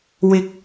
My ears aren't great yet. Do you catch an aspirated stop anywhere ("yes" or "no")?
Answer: no